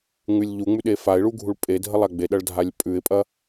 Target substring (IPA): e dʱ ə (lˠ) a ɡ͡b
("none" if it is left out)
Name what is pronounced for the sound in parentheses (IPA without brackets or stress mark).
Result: lˠ